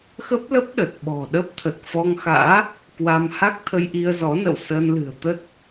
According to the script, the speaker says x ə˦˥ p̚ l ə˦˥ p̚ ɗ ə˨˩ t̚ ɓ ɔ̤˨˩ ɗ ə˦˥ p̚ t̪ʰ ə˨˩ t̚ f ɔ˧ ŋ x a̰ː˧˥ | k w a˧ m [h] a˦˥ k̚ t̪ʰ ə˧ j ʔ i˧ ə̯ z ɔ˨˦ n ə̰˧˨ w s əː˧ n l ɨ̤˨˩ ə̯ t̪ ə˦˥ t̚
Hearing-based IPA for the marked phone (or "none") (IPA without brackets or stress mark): h